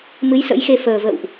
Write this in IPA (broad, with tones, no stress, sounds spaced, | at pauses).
m ɨ˨˦ j s ə̰˧˥ j x e˧ f əː˨˩ v ə̰˧˨ w ʔ